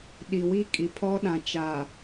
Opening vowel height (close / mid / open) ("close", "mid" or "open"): close